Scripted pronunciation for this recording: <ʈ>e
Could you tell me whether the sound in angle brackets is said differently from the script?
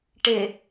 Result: no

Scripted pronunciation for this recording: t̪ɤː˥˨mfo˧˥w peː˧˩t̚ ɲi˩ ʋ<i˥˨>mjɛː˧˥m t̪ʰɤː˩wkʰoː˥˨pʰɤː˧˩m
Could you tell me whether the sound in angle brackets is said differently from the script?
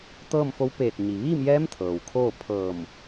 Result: yes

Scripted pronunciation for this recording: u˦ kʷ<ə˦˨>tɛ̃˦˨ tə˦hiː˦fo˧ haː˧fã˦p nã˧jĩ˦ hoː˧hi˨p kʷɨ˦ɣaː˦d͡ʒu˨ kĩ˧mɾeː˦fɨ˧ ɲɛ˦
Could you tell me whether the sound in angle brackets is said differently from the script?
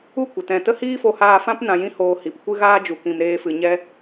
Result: yes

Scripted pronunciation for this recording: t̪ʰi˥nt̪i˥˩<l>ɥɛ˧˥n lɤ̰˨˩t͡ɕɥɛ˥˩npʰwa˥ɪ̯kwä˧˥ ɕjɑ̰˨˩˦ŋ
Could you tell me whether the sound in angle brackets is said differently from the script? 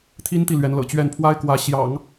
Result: no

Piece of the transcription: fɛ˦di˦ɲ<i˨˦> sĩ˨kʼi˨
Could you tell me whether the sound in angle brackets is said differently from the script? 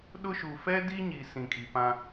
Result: yes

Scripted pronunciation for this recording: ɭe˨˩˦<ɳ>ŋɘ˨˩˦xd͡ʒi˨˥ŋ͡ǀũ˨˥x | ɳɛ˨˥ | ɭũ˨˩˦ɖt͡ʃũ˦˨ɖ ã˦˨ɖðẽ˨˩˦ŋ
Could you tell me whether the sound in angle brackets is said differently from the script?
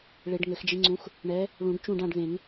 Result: yes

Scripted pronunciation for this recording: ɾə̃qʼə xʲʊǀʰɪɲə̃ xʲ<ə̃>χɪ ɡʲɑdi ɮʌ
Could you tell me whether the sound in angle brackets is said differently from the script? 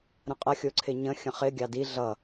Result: no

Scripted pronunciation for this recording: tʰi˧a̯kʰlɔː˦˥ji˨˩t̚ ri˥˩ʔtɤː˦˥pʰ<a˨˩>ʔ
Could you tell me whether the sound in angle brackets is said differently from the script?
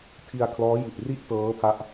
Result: yes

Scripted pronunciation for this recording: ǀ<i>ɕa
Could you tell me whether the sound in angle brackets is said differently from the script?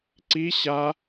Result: no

